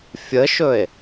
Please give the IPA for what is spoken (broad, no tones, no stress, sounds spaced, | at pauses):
fʲ ə ʃ ɵ e̯